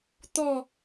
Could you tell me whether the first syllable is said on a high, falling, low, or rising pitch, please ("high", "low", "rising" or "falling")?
falling